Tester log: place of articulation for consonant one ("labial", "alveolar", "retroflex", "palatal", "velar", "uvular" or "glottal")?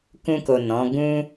velar